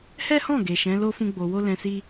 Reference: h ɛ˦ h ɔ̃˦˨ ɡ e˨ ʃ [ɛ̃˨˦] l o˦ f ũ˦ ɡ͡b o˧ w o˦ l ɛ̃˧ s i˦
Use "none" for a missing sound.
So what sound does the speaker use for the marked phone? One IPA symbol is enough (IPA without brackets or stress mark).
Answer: ɛ̃˨˦